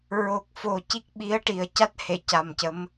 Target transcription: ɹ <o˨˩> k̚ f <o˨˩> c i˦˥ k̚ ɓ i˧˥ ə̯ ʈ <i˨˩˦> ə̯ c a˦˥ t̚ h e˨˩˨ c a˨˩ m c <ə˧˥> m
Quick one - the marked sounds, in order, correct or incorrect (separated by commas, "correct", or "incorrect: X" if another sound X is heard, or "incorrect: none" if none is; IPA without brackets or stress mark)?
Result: correct, correct, incorrect: i˨˩, correct